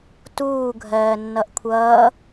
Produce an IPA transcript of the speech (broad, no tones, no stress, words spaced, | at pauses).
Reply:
tuːɡʱɜːnːʌʔ kʷʰʌː